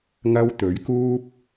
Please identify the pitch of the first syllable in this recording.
high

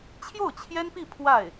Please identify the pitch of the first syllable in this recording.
falling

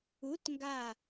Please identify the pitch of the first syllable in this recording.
rising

